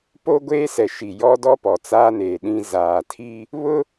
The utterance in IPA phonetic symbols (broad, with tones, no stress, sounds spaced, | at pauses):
p o˦ ɡʷ eː˦ s ɛ˨ ʃ i˨ j ɔ˦ d ɔ˦ p ɔ˨ t͡s aː˦ n eː˨ ɗ ĩ˦ z aː˨ tʰ i˦ | β ʊ˦